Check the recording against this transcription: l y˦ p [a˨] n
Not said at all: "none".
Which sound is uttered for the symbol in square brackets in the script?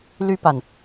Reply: a˨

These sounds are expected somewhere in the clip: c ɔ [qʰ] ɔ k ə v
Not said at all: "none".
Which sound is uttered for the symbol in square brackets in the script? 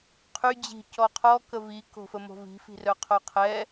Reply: qʰ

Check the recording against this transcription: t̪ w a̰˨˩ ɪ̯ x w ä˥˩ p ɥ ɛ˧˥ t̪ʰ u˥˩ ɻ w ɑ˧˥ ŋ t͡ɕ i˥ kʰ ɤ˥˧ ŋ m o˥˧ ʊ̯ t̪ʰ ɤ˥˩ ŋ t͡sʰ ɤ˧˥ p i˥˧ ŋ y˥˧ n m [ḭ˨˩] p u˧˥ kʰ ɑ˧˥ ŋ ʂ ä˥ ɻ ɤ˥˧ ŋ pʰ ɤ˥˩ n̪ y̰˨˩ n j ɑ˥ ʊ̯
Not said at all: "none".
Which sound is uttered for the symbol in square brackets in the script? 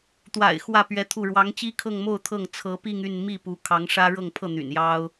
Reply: i˥˩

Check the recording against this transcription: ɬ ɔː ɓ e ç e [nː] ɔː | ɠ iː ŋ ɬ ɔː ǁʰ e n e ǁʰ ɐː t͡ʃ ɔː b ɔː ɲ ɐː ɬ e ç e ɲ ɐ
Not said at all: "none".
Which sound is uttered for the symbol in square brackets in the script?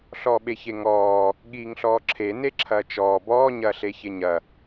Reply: ŋ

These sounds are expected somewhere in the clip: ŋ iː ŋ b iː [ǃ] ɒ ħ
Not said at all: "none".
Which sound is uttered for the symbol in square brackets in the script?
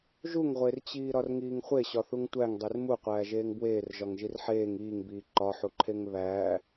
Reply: ǃ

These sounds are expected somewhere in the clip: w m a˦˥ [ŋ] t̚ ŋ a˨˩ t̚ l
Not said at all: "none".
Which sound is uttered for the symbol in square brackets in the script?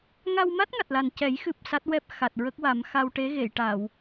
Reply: none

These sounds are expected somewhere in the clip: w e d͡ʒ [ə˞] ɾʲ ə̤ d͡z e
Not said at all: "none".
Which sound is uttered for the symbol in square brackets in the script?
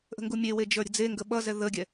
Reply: ə˞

